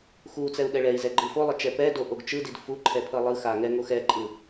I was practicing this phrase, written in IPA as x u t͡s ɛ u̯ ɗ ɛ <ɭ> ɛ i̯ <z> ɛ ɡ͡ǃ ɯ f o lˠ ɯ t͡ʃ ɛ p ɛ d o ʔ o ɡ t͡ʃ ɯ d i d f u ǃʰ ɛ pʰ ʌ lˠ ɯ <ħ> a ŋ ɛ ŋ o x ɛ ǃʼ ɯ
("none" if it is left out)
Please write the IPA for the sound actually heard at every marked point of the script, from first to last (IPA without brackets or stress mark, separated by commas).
ɭ, z, x